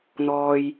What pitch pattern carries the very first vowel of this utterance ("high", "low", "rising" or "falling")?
low